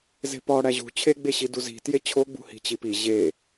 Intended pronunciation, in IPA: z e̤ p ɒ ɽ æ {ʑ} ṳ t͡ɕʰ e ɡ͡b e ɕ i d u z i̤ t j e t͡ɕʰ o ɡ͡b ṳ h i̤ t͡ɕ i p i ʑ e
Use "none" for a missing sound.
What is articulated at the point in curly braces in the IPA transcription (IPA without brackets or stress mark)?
ʑ